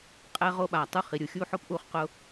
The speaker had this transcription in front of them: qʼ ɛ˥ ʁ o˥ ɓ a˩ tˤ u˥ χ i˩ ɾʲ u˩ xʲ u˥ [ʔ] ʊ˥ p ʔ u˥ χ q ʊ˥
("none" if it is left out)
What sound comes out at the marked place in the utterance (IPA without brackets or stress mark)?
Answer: ħ